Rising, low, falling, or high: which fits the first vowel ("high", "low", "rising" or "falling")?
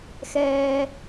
high